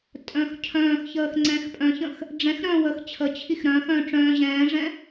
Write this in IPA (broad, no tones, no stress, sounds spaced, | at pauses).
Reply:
tʼ œ̃ː x cʰ œ̃ː x ç əː x ŋ͡ǀ ɛ̃ː x pʼ œ̃ ç ə̃ x | ɖ͡ʐ ɛ̃ x ɾ œ̃ː w əː x t͡ɕʰ ə t͡ɕʰ i x ɾ œ̃ː x œ̃ː ʈ͡ʂ œ̃ː ʑ ɛ̃ː ʐ ɛ̃